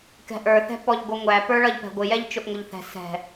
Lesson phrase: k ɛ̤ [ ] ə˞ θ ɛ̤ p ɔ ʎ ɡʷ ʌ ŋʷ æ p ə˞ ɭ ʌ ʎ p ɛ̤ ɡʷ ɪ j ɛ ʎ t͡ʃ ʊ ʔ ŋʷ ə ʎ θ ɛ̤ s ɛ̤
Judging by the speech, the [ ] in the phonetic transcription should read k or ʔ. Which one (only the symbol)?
ʔ